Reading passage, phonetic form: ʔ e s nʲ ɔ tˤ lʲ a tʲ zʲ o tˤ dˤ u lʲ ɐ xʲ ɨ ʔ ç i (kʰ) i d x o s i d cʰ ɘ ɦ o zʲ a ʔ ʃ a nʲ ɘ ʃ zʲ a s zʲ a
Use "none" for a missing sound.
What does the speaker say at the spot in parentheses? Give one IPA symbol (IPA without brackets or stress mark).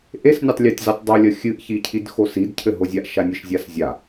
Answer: cʰ